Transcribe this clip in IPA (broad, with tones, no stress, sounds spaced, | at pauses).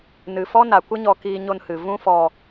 n ɨ˨ f ɔ˦ n a˨ kʷ ə˦ ɲ ɔ˧ k iː˧ ɲ o˧ n h ɨ˨ v ũ˦ f ɔ˧